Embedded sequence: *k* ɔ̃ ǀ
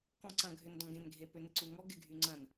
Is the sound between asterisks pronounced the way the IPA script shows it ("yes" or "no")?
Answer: yes